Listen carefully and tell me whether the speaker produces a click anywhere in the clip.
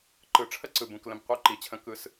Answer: yes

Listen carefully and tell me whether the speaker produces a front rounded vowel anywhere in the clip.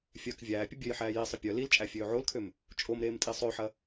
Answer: yes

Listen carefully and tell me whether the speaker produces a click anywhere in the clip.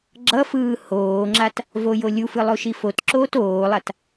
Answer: yes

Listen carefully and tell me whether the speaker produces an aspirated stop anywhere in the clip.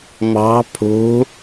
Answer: yes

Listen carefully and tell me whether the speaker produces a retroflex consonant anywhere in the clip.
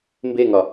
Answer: no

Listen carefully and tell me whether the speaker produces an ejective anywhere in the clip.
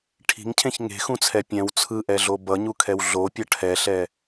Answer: no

